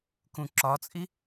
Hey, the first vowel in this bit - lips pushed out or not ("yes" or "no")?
yes